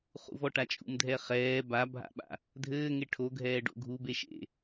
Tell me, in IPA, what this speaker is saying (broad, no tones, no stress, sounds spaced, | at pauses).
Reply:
χ ṵ v ɔ ʈ a t͡ʃʼ ṵ m dʱ ɛ χ ɛː b a bʱ a̰ ɓ a̰ | dʱ ɘː ŋ e ʈʰ o ɡʱ ɛː ɖ o̰ ɡʱ u b e ʃ ḛ